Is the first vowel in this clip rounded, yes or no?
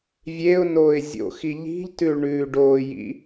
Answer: no